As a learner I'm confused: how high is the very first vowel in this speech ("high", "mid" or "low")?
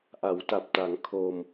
low